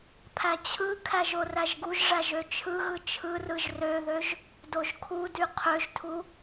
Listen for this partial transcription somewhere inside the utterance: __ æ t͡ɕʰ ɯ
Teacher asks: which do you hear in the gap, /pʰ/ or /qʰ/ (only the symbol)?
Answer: pʰ